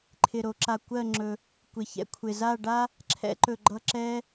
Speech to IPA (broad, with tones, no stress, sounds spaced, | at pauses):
ǃʰ ɪ˧ ɾ o˩˧ ǁ a˧ kʷ ɜ˥˧ ŋ͡ǁ ɵ˧ | kʷ ɪ˧ ç ɛ̰˥ kʷʰ ɪ˧ z a˥˧ ɖ a˥ | ǁʰ ɛ̰˥ ǃ ɵ˧ ɡ͡ǃ ʌ˥˧ ǁ ɛ˥